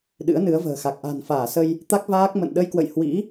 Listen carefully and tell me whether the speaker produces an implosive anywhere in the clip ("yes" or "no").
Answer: yes